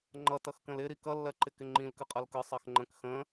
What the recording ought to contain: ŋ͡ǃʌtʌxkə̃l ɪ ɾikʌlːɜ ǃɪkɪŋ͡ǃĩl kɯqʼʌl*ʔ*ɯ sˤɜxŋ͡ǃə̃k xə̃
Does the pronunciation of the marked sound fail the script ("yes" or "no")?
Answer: yes